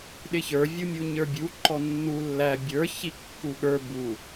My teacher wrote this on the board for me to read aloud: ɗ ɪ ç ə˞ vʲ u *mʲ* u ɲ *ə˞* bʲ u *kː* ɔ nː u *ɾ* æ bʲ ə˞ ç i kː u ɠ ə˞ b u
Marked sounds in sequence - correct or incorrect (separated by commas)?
correct, correct, incorrect, incorrect